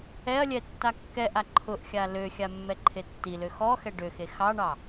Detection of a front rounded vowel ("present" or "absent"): present